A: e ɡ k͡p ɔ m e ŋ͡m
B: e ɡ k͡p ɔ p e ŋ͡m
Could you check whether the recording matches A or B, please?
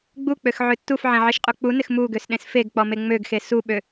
A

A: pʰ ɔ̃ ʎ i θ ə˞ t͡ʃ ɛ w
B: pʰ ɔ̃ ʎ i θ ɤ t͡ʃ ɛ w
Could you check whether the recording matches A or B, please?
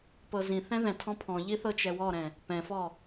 B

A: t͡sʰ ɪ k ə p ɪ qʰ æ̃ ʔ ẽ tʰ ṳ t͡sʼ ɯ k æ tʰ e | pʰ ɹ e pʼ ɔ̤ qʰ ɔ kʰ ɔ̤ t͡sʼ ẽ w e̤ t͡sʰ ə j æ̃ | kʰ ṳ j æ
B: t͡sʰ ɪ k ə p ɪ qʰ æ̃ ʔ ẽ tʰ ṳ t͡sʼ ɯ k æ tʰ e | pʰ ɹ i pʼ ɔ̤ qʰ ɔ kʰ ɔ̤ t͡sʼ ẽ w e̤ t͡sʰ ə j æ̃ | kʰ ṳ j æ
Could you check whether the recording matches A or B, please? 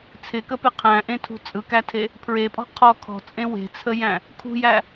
A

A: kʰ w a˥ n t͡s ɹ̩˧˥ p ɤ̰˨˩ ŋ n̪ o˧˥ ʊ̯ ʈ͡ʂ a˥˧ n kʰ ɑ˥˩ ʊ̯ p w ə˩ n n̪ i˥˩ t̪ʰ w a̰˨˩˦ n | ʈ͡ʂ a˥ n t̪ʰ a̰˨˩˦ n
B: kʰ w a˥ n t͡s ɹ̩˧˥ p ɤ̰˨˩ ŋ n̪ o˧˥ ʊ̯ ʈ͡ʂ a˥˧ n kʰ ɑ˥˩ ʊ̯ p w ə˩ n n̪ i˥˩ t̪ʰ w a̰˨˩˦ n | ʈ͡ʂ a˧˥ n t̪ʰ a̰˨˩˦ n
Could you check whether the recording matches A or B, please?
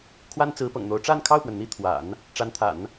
B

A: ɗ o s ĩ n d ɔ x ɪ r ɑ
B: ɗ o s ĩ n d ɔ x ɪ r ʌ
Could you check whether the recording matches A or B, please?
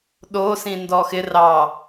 A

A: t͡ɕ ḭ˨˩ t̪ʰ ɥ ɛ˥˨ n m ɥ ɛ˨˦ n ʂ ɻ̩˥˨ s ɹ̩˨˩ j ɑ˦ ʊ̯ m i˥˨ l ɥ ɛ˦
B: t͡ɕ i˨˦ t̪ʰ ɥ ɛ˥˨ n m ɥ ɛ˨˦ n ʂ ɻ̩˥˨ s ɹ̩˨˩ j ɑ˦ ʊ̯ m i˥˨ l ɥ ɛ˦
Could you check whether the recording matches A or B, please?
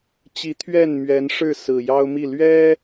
B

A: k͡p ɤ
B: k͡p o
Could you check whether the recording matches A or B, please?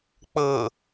A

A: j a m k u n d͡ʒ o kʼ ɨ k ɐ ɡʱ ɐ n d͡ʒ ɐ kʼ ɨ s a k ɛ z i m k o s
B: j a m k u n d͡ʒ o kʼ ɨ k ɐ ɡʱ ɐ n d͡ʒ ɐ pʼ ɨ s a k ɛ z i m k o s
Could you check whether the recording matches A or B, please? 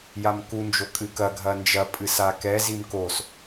B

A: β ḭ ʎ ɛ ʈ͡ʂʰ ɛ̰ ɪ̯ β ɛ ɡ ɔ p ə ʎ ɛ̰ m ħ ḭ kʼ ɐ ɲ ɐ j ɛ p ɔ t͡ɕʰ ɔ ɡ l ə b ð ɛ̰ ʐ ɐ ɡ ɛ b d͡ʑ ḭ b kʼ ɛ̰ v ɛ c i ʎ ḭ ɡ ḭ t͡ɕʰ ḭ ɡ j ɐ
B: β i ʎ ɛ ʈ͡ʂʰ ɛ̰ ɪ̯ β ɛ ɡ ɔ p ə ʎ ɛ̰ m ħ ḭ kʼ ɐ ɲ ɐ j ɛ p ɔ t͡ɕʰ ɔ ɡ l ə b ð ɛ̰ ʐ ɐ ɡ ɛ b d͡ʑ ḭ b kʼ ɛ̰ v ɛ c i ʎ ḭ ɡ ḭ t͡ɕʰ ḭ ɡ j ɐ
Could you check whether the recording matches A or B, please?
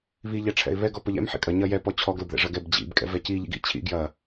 B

